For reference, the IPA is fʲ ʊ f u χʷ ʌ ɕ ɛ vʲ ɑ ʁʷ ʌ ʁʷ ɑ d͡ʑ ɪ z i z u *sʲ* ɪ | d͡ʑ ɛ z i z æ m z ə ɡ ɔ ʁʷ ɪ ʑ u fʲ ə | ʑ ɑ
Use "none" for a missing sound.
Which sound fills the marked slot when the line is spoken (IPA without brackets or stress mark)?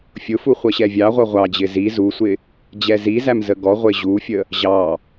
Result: sʷ